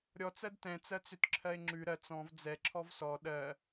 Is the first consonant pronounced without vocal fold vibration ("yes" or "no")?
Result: no